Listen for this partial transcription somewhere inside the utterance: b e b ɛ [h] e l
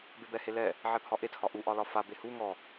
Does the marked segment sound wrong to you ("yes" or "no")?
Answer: no